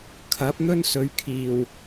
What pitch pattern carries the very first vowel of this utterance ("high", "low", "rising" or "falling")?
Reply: rising